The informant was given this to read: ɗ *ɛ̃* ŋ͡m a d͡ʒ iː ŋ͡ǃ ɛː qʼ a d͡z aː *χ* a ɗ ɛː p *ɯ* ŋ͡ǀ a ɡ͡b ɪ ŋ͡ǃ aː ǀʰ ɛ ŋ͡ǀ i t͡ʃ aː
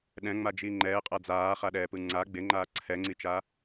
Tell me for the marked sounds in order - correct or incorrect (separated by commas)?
correct, correct, correct